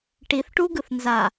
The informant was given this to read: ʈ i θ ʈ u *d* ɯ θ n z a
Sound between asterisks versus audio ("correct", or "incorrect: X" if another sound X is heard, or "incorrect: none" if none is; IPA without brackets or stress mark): incorrect: ɡ